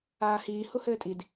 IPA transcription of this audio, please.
aː h iː h u h ɘː tʼ i d

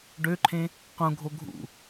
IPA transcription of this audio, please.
ɖ ø ǃʰ ẽ | q ũ ɡʱ o ɡʱ ṵ

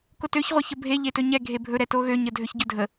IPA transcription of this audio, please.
k o t ø ç ʁʷ e ç ə bʱ e ʎ e t ɵ ɲ ɛ ɡʱ e bʱ ɵ ɾ ɛ t o ɣ ø ɲ ə dʱ ø ç ɟ ɵ dʱ ə

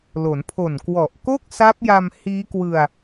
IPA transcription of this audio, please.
l o˩˦ n pʰ o˨˩ n k w ɔ˨˩ ʔ k o˥˩ k̚ s a˦˥ p̚ j a˧ m h iː˦˥ k w ɯ˧ a̯

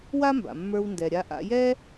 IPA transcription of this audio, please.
w a˥ m b a̰˩ mː ə˞˧ w n d ɛ˩ ɾʲ a˧ ʔ a̰˧ j ɛ˥

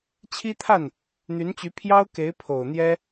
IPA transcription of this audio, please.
t͡ɕʰ i˥ t̪ʰ a˥˩ n | n̪ y˧˥ n t͡ɕ y˧˥ pʰ j ɑ˥ ʊ̯ k e˧˥ ɪ̯ pʰ o˨˩ ʊ̯ n̪ j ɛ˥

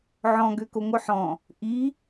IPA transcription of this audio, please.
ʕ ɔ̃ ɡ ø k o ŋʷ œ ħ ɔ̃ | ʔ i

